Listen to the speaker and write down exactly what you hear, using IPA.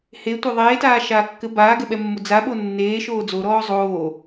h e tʷ e ðˤ eː t aː ʃ aː kː ɘ b aː ɡ ɛ ɓ ɛ mː o d͡z a ɓ o nː eː ʃ oː d͡z o ɾ ɔː zˤ oː

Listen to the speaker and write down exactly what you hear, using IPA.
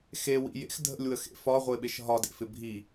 x e w ḭ j ḛ x dʱ ə̰ lʲ w ə x ḛ f ɒ ʁʷ e ɓ e ʃ ɦ ɒ d ḛ f ɪ bʱ i

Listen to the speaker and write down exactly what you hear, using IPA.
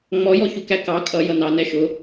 ŋ͡m ɔ j ɔ ç u k æ k ɑ kʼ ʌ j ʌ n ɑ n ɛ ʃ ʊ

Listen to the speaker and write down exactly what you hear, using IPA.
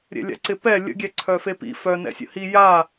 ɾʲ ɛ̰ lʲ a̰ ǀ ɪ p ɛ lʲ ə̰ ɡʲ ɛ ǀʰ œ f e p ḭ f œ n ɛ̰ sʲ ə̰ h i j a

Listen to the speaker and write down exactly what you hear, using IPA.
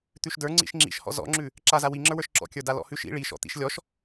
t̪ ʉ ʃ d ə˞ ŋ͡ǀ ḭ ʃ ŋ͡ǁ ḭ ʃ h ɔ̰ z ɔ̰ ŋ͡ǁ ʉ | ǁ a z a w i ŋ͡ǁ ə˞ w ə˞ ʃ ǁ ɔ̰ kʲ ə˞ d a l ɔ̰ h ʉ ʃ ḭ ɭ i ʃ ɔ̰ t̪ ḭ ʃ lʲ ɔ ʃ

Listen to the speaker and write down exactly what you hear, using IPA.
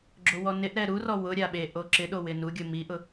ɡ͡ǁ o w ɔ n ɪ ʔ ɾ ɛ ɾ u r ɔ w ʊ ɾʲ a ɓ e ʔ o ǁ ɪ ɗ o w ɪ n u ɡʲ ʊ m i ʔ ʊ

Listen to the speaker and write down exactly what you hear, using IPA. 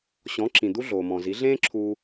ɕ ɔ̃˩˥ ǁ ĩ˩ d̪ u˥ ɮ oː˩ m ɔ̃˩ z i˩˥ ɮ ẽː˥ ǁʰ uː˧

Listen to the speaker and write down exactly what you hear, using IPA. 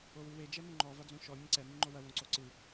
o w ɨ w e d͡ʒ ɛ m õ ŋ͡ǃ ɔ v a d͡z õ ʃ ɔ mʲ ɐ̃ ǀ ɛ m i ŋ͡ǃ o w ɐ w õ ǀ o ǀ ɨ

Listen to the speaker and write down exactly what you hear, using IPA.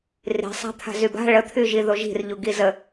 r i̤ sˤ a̤ t̪ʰ a̤ z y b a̤ ɭ ə t̪ʰ y ʒ i ð o ʒ i̤ r ʎ u ɡ i z ə

